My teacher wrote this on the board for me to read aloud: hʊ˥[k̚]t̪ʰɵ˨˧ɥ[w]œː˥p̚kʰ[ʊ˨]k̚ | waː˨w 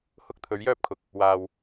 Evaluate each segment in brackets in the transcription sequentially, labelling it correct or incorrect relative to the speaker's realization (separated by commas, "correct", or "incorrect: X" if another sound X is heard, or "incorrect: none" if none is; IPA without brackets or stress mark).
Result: correct, incorrect: j, correct